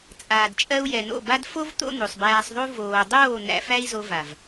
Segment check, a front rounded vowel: absent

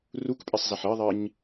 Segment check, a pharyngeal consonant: present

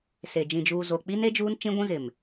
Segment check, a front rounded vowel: absent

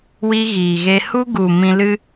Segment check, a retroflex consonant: absent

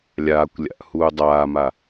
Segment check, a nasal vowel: absent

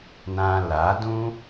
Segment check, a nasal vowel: present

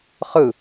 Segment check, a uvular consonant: present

